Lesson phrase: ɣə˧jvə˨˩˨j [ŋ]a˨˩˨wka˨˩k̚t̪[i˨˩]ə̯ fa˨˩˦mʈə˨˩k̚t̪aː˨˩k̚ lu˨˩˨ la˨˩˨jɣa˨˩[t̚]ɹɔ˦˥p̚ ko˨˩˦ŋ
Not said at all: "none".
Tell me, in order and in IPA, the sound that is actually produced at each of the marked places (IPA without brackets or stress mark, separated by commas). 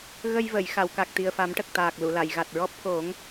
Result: x, i˨˩, t̚